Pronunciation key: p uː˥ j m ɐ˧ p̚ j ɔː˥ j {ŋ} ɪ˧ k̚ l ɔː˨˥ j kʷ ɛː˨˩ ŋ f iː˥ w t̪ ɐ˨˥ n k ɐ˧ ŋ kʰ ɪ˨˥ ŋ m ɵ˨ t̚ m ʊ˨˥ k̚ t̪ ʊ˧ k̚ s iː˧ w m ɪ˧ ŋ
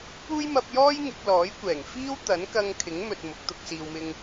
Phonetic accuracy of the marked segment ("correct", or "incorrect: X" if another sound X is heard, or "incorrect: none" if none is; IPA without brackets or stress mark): correct